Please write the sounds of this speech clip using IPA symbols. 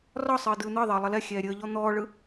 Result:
r ɒ sˤ ɯː d ɯː n̪ ɯ ðˤ əː lˠ ə l ɛ xʲ ɛː ɾʲ əː ʎ ɔ n̪ ɔː ɭ ɯ

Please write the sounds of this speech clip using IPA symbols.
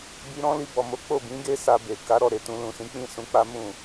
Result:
b i˧ ɾ ɔ̃˦ l i˧ b ɔ˨ m o˨˦ k͡p o˦˨ b ĩ˨˦ ɡ e˦ s a˧ b e˨ k a˨˦ ɾ ɔ˦˨ ɾ e˨ t ũ˧ l ũ˨ s ĩ˨˦ k͡p ĩ˦˨ s ũ˨˦ k͡p a˦ m ũ˦˨

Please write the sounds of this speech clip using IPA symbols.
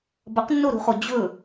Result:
b ɐ q nː o ɾ ṳ χ o d͡ʑ ɵ

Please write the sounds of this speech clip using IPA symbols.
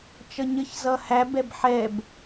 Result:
t͡ʃ ʌ ɲ ə ç z ʌ h æ b ɛ b ħ ɛ b

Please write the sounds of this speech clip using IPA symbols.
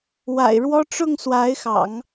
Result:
w a̰˨˩ ɪ̯ ɻ w ɔ˥ ʈ͡ʂ ʊ˥˩ ŋ s w a˧˥ ɪ̯ x ɑ̰˨˩˦ ŋ

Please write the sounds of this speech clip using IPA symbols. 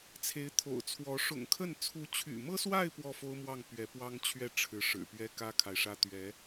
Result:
t͡sʰ e˧˥ ɪ̯ t̪ʰ o̰˨˩ ʊ̯ t͡sʰ w ɔ˧˥ ʂ ʊ̰˨˩ ŋ kʰ ə˥˩ n t͡sʰ u˧˥ t͡ɕʰ y̰˨˩ m ɤ˥ s w a˥˧ ɪ̯ p w ɔ˥˩ f o˥ ʊ̯ m w ɑ˥˩ ŋ p ɥ ɛ˧˥ p w ɑ˥ ŋ t͡ɕʰ ɥ ɛ˥˩ ʈ͡ʂʰ ɻ̩˧˥ ʂ ɻ̩˨˩ p ɥ ɛ˥ k ä˥ kʰ a˨ ɪ̯ ʂ ä˥ t̪ ɥ ɛ˧˥

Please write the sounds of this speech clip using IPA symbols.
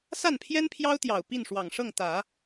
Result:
s a˥˩ n pʰ j ɛ˥ n pʰ j ɑ˥ ʊ̯ t̪ j ɑ˨˩ ʊ̯ p i˥˩ n ʂ w ɑ˨˩ ŋ ʂ ɤ˥˩ ŋ t̪ ä˨˩˦

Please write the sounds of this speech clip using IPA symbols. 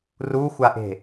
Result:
r u xʷ a ʔ e̤

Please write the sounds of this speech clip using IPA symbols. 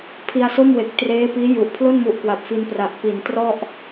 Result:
pʰ i˧ a̯ s o˥˩ m w e˨˩ k̚ t r eː˦˥ p iː˦˥ j u˨˩ ʔ pʰ l o˥˩ n m u˨˩ ʔ k w a˨˩ p̚ f i˧ n p r a˨˩ ʔ p i˩˦ n t r ɔ˥˩ ʔ

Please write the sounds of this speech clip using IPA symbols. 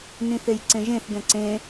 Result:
n ĩ θ e j ǀ ẽ ʒ ẽ θ ɡ ɛ̃ ǀ ẽ

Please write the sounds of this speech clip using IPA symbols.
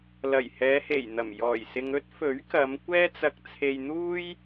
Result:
l ɐ˨˩ j h ɛː˨˧ h e˨˩ j n̪ ɐ˨˩ m j ɔː˨˩ j s ɪ˨ ŋ ɵ˥ t̚ f ɵ˨˥ ɥ k ɐ˨˧ m kʷ ɛː˥ t͡s ɐ˧ k̚ t͡sʰ e˧ j n̪ uː˥ j

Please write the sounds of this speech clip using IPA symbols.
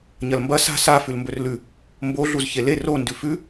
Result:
ɲ ɐ l m b ɐ s a̤ s a f ʉ l m b ɵ r l ʉ | m b o ɮ u z ç e l e r o n d ʉ f ʉ

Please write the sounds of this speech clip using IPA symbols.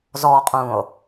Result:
z ɔ qʼ ũ o̯

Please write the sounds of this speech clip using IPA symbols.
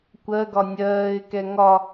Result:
kʷ ɜ ɡ ɒ nʲ ɜː ɪ̯ k ɛ ŋ ɒ

